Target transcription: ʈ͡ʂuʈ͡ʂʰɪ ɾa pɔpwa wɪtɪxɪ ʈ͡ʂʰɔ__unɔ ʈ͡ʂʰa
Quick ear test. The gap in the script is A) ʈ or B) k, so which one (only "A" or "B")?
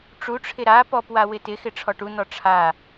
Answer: A